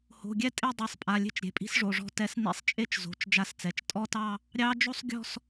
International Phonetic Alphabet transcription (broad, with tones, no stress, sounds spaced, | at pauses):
h o̤˩˧˩ ɡʲ ɛ˦˥ tʼ e˥˧ dˤ i˩˧˩ sˤ pʼ a˩˧˩ lʲ e̤˥˧ t͡ʃ ɾʲ e̤˩˧˩ pʼ i̤˦˥ s ʐ o˩˧˩ ʐ ɔ̤˦˥ t ɛ˦˥ s n ḭ˥˧ sˤ t͡ʃʼ e˥˧ t͡ʃ z o̤˩˧˩ t͡ʃ d͡ʒ a˥˧ s t͡s ɛ˩˧˩ t͡ʃ tʼ ɔ˥˧ t ɑ˥˧ | ɾʲ ɑ˦˥ d͡ʒ o˥˧ sˤ ɡʲ ɔ̤˥˧ s